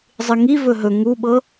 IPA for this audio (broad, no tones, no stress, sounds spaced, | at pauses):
zˤ ɨ ŋ i v ɵ ɦ ɵ ŋ u ɓ ɤ